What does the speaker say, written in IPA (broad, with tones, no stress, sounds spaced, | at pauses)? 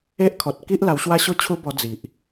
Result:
e˦ ʔ kʰ ɔ˨ t̚ k i˦ ʔ l a˧ w ɕ w a˦ ɕ o˦ t͡ɕʰ u˦ b ɔ˧ d͡z i˨ ʔ